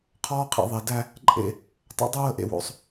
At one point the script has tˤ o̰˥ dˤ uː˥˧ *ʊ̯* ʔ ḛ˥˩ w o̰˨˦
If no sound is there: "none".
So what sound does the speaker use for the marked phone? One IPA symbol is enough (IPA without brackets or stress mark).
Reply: ə̯